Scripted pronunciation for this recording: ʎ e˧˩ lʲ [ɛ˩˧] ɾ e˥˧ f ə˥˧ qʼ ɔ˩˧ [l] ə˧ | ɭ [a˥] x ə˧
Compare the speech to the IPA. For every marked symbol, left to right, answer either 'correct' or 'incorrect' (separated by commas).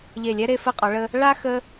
incorrect, incorrect, correct